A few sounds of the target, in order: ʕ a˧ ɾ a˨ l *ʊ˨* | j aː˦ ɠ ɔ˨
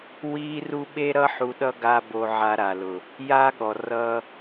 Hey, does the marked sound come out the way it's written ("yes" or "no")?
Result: yes